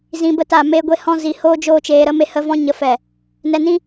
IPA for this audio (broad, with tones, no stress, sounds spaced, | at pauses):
z ĩ˧ b ə˦ t a˦˨ m e˦ ɡʷ e˦ h ɔ̃˦ z i˨˦ h oː˦ d͡ʒ oː˦ t͡ʃ eː˧ ɾ ə˦ m e˦ h ə˦ v ɔ̃˦ ɲ ə˦ f ɛ˦˨ | n ɛ˧ n ĩ˦